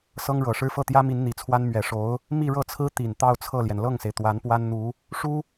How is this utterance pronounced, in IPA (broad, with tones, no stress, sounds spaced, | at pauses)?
s ɤ˥ ŋ ɻ ɤ˨˩ ʂ ɻ̩˥ f ɤ˥˩ t̪ j ä˥ m i˧˥ n n̪ i˨˩ t͡sʰ w a˥ n m ɥ ɛ˨˩ ʂ o˧˥ ʊ̯ | m i˥˧ ɻ ɤ˥˩ t͡sʰ ɹ̩˥ t̪ i˨˩ n t̪ ɑ˥˧ ʊ̯ t͡sʰ ɤ˥˩ l j ɛ˩ n l ɤ˥˩ ŋ s e˩ ɪ̯ t̪ w a˧˥ n p w a˥ n n̪ u˧˥ | ʂ u˥